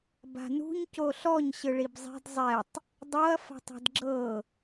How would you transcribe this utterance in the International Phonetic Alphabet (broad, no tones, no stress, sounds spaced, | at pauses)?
b a̤ n ṳ ɲ c o ɬ ɔ ɲ ɕ ɯ ɭ i b zˤ e̤ d zˤ ɛ tˤ | dˤ o ɐ̯ f a̤ tˤ ɛ̤ d ɡ͡ǁ ɤ